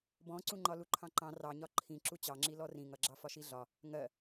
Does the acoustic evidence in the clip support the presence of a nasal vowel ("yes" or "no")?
yes